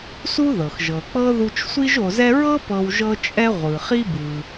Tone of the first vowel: high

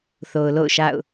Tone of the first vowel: low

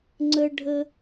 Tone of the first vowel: high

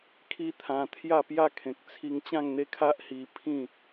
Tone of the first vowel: high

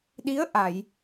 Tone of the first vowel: rising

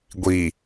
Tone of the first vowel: low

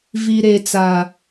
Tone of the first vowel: low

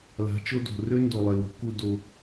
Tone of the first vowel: rising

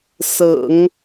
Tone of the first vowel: low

